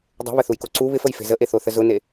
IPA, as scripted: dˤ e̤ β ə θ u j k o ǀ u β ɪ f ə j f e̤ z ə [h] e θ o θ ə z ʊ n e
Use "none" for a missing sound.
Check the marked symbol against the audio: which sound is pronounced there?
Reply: ʔ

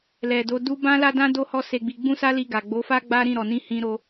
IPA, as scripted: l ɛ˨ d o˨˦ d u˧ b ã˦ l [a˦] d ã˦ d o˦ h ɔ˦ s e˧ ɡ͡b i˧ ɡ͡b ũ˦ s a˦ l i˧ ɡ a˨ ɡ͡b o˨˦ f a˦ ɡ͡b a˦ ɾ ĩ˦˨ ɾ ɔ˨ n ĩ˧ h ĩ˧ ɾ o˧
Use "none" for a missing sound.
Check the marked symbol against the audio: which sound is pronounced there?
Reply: a˦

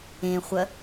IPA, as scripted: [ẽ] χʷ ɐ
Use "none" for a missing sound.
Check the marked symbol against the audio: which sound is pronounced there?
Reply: ẽ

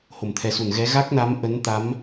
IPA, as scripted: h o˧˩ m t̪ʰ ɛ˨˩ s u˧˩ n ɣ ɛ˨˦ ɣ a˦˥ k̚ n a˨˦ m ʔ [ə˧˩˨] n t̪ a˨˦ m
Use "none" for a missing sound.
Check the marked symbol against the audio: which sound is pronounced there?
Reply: ə˨˦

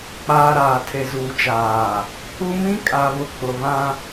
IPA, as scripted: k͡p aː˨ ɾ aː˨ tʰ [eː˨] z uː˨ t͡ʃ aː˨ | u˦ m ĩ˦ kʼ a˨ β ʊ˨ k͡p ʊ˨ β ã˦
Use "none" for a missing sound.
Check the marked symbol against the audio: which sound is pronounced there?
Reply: e˨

